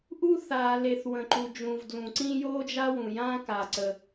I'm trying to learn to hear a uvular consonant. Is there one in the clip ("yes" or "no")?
no